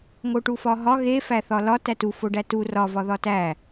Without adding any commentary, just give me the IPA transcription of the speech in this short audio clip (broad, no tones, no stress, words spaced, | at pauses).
ŋoʈufɒɦɒ ɣe fæθɒlɒ tætufoɖæ tu rɒvɒ ðɒtæ